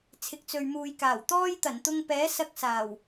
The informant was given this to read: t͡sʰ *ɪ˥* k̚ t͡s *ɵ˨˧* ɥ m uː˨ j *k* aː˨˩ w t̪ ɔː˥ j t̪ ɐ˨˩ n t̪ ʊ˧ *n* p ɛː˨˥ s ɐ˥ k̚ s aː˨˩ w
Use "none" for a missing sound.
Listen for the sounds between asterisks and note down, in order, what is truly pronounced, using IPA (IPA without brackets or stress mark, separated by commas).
ɪ˨, ɵ˨, k, ŋ